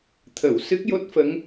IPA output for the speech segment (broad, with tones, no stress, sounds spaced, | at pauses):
t̪ʰ ə˨˩˨ w s ɨ˦˥ k̚ j o˦˥ t̚ f ə˧˥ ŋ